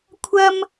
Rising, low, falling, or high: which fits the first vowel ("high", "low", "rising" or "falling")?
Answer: high